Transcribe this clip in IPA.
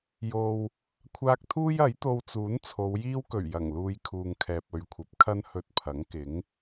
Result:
j o˨ w | kʷʰ aː˧ k̚ t̪ʰ uː˥ j ɐ˨˥ j t̪ o˧ w t͡s uː˨˥ n t͡sʰ o˨˧ w j iː˥ w k ɵ˨˩ ɥ j ɐ˨˩ ŋ l uː˧ j kʰ uː˨ ŋ kʰ ɛː˨ p̚ ɵ˨ ɥ kʷʰ ɐ˨˥ p̚ kʰ ɐ˥ n h ɵ˧ t̚ pʰ ɐ˨˥ ŋ k ɪ˨˥ ŋ

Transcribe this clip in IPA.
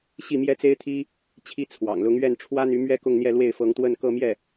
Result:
ɕ i˥˩ m j ɛ˥ t͡s e˥ ɪ̯ t̪ʰ i˥ | t͡ɕʰ i˥ t͡sʰ w ɑ̰˨˩ ŋ l ʊ˧˥ ŋ ɥ ɛ˥˩ n ʈ͡ʂʰ w ä˥ n̪ y˧˥ m ɥ ɛ˥ k ʊ˥˧ ŋ n̪ j ɛ˥˧ l w e˥˩ ɪ̯ f ɤ˧˥ ŋ t̪ w ə˥˧ n k ɤ˥˧ m j ɛ˥˩

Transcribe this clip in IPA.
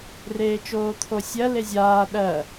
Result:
r eː t͡ʃ oː t̪ʰ o sʲ ɜ l e zʲ aː ɗ ɜ

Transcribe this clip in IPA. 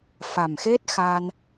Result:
f a˨˩ m x e˦˥ t̚ x a˧ n

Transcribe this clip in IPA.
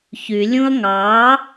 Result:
ç y lʲ ũ ɐ̯ ŋ ɑ

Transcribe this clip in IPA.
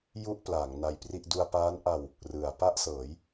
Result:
j u˥˩ ʔ p l aː˩˦ ŋ n a˧ j p r i˥˩ ʔ d u˧ a̯ p aː˦˥ n ʔ a˧ w | r ɯ˩˦ a̯ p a˥˩ ʔ s ɤː˩˦ j

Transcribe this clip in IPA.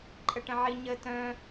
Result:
ǃʼ ə ʈ ə̃ ʕ i ɲ ə t œ̃

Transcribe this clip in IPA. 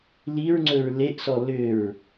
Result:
l i ɹ ŋ͡ǀ ɵ ɹ l e ʔ s ɔ l ʏ ɹ

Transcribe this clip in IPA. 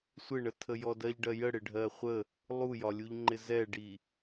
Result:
sʷ ɪ ɳ ə tʰ ə j ɔ d ɜ ʎ ɖ ɜ j ə ɽ ɪ ɖʱ ɜ χʷ ə | lˠ u j ɒ lʲ u ʎ ŋ͡ǃ ɪ z ɛ ɖ i

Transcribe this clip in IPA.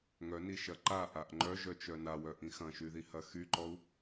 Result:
ŋ œ n i ʃ ɐ ǃ a ʔ a ʔ ŋ͡ǃ œ ʒ œ t͡ʃ œ n a w œ ʔ ĩ x ɐ̃ ʃ y ð i h ɐ x y ǃ ɔ u̯

